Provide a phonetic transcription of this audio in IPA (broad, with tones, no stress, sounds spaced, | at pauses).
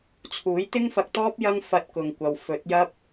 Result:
t͡sʰ uː˨˥ j t̪ ɪ˥ ŋ f ɐ˧ k̚ t̪ ɔː˥ p̚ j ɐ˥ ŋ f ɐ˧ t̚ k ʊ˨ ŋ kʷ ɐ˨ w f ɵ˨˥ t̚ j ɐ˥ p̚